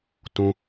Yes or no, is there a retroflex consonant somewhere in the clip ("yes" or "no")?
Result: no